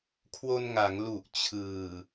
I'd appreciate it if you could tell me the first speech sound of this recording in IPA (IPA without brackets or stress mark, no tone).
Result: kʰ